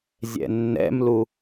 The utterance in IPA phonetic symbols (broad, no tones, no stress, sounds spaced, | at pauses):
zʲ ɛ̰ nː ɛ̰ m l u